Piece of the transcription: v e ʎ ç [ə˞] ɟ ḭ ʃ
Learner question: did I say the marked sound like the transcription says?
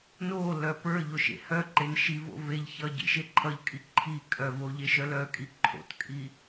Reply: no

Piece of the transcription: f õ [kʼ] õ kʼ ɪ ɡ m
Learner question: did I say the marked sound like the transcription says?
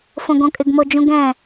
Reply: no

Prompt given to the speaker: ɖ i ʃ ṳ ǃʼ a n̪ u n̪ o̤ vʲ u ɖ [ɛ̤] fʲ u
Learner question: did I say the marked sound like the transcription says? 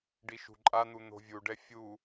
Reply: no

